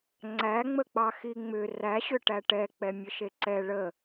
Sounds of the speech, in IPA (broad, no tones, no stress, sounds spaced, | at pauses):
ŋ͡ǀ æ ŋ͡m ə k͡p ɑ x i ŋ͡m ʏ r æ ɕ ʏ ʈ æ ʈ ɛ k͡p ɛ mʲ ə ʃ e ǀ ɛ ɭ ə